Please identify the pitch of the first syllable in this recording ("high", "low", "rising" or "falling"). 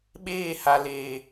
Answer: falling